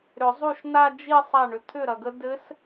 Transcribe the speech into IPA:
ɾʏ˨˩˦zˤu˥˩ʃna˥˧ d͡ʒi˥˧ sˤa˥˩ɳʏ˨ t̪ʰʏ˥˩ɾɐ˨ɡə˧˥ dɘ˧˥s

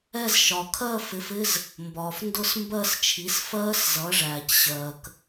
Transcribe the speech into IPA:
ɛ˥˧z ʃɒ˩ kʰɜ˥˧fɪ˩˥fɪ˧˥˧z | mbɒː˩fndʊ˥˧smbɜ˥˧st͡ʃʰi˩˥s fɜː˦˥s zʌ˩˥ʐæː˩cɕɜː˩k

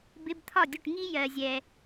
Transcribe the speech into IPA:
bɪ˧˥˧bt̪ʰɒ˥˩dʲʊ˥˩ʈ ŋi˥ jɜ˨zʲɛ˨

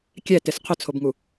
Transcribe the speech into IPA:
kʲɛtɪs qʰʊt͡sʰobŋu

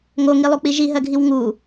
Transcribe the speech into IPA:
ŋoŋilˠuk͡pi ʒiɦɜɡʱiw ŋu

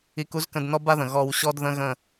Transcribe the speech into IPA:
i˧ku˦zkə̃˧d nɔ˦ba˦ðə̃˨ ɣɔ˧wɕɔ˦d ðə̃˦ɣə̃˦˨

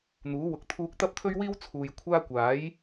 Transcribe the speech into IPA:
n̪uː˨˥wʊ˨k̚ t̪ʰuː˧k̚t̪ɐ˥p̚t̪ʰɵ˥ɥwiː˥w t͡sʰuː˨jkʷʰaː˥ kʷaː˨˥j

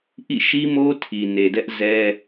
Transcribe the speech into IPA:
ʔḭ˦˨ʃi˦ mo˦ tʰi˨ne˨dɛ˦ʔ zɛ˦

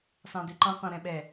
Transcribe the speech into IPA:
sɑ̃dʉǃɑ̃ qʷɑ̃ɾɛ̃ɓɛ

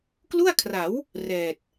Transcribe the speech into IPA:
klu˥˩a̯kʰra˩˦w | rɛː˨˩t̚

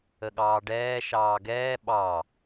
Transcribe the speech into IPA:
əɠɑːɖɛː ʃɑːɡɛː ɓɑ

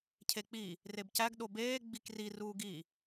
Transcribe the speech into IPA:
cʰek͡pi | rebcæɡ ɗobeː ɡ͡bikri ruːɡi

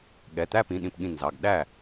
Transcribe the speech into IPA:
ɠɛ˩˧˩t̪æ˥˧pĩ˩˧˩ ɗĩ˧˩pɠĩ˧˩ nzɑ˩˧˩ɡɗæ˥˩

